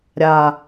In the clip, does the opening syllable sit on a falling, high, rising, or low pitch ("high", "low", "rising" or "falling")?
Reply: low